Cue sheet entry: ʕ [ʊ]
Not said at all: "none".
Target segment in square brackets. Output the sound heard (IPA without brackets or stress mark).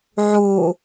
u